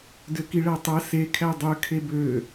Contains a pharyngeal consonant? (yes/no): no